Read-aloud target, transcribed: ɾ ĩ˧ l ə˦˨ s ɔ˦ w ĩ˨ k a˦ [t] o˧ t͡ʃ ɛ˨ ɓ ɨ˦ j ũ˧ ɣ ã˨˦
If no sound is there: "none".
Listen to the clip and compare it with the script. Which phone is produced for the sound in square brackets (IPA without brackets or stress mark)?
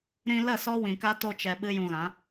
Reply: t